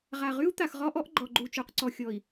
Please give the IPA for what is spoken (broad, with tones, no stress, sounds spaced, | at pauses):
ʁ a˨ ʁ y˦ u̯ t̪ a˨ x ʁ ɔ˦ ʔ ɔ˦ ʔ ɡ͡ǃ ɔ˨ ɡ͡ǃ u˨ t͡ʃ u˨ q ǀ ɔ˨ xʲ ɔ˨ i̯